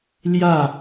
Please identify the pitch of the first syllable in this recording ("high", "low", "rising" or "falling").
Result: falling